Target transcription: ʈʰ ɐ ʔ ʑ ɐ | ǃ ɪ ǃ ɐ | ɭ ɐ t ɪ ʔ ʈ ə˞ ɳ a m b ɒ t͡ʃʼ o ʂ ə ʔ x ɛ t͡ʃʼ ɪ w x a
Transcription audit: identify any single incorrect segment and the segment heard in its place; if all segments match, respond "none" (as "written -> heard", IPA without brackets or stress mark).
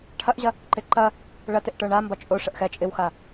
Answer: none